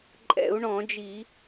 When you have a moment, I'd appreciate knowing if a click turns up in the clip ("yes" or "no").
yes